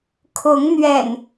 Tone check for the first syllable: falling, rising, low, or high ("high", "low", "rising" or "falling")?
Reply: rising